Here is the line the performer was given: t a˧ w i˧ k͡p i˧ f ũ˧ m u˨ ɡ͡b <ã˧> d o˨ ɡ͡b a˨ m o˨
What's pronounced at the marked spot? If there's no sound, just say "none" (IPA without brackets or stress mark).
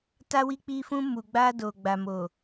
a˧